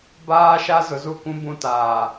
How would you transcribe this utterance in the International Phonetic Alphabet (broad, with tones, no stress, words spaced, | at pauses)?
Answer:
baː˦ʃa˦ zʊ˨zu˦˨kʷũ˦ bũ˦taː˨